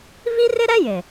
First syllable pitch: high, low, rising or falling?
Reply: high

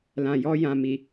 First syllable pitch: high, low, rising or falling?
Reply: low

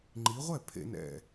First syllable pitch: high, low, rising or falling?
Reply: rising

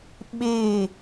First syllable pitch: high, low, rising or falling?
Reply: falling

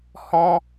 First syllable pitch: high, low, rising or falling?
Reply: high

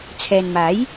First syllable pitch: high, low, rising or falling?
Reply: low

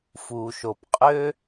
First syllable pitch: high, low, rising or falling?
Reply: low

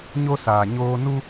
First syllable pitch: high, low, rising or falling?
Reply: high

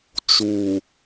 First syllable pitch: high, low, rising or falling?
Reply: low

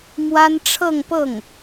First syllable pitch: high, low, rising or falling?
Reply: high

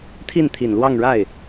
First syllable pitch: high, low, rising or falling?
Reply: falling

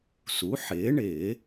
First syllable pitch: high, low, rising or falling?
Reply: rising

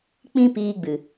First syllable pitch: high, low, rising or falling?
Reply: high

